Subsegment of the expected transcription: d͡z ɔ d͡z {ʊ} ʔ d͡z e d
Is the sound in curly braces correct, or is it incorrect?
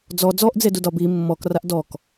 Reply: incorrect